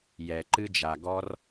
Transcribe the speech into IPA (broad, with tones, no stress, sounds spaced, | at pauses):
j ɛ˨ ǃ ɨ˦ d͡ʒ a˨ ɡ ɔ˦ r